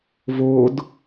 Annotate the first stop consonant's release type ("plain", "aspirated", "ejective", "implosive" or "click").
plain